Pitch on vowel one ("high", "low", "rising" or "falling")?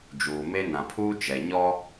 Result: low